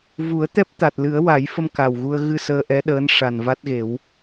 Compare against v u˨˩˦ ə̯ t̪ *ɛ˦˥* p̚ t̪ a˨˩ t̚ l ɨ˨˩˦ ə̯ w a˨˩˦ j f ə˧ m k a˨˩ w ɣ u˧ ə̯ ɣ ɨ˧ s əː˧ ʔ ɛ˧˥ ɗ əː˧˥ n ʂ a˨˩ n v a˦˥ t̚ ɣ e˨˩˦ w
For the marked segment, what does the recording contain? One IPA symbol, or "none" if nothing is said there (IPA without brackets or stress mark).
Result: ɛ˦˥